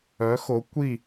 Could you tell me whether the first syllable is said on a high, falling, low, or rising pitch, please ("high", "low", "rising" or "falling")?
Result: rising